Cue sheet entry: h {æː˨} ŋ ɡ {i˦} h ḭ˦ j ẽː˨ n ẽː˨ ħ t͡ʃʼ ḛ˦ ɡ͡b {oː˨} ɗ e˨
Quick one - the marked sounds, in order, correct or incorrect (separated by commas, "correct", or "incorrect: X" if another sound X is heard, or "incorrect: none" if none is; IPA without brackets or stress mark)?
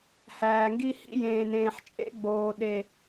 correct, correct, correct